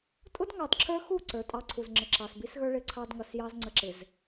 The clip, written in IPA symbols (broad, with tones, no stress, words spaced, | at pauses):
tʼʊ˦dŋɑ˨dǁʰə˞˦xu˦˨ ǀə˞˨tʼɑ˦ǀʰu˨z ŋ͡ǁə˨ǁɑ˨sbi˦sɣə˞˦ ɭɪ˦ǀʰɑ˦dŋʌ˨sjɑ˦z ŋ͡ǀə˨ǁɪ˨z